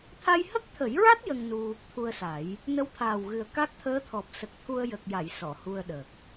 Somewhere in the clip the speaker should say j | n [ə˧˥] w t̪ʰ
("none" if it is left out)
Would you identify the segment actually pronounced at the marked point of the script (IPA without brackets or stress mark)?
ə˧˥